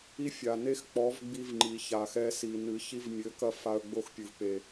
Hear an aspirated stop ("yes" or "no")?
no